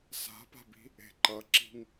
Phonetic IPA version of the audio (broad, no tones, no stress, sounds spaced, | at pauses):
s a̤ p a̤ b i̤ | e̤ ǃ ʌ ǁ i̤ ŋ